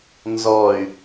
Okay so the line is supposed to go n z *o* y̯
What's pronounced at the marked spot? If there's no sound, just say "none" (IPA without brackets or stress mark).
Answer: ɔ